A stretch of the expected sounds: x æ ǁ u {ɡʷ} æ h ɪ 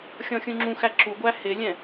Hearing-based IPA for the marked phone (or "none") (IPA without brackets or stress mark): ɡʷ